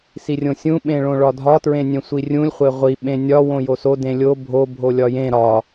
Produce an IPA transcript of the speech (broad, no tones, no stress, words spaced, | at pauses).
sirʲõsʲũ ɓẽɭõɭɒdʱɒ tɹẽnʲẽsʷirʲũlʲ χʷeʁʷi ɓẽnʲɒ wõjoso dẽlʲo bʱo bʱolʲɒjẽ ɾɒ